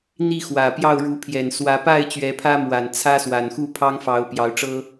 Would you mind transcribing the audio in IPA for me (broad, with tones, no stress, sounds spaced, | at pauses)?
n̪ i˥˨ x w ä˨˩ p j ɑ˥˨ ʊ̯ ɻ u˨˦ pʰ j ɛ˨˩ n s w ä˨˦ p a˥˨ ɪ̯ t͡ɕ ɥ ɛ˨˦ pʰ ä˦ m w a˨˩ n t͡sʰ ä˦ s w a˨˩ n x u˥˨ pʰ ɑ˦ ŋ f ɑ˨˦ ʊ̯ p j ɑ˨˦ ʊ̯ ʈ͡ʂ ɤ˦